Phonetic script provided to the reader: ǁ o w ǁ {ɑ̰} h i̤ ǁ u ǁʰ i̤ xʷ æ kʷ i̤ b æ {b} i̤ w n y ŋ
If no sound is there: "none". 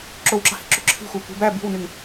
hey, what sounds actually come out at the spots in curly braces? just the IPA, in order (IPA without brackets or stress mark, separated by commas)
ɑ̤, b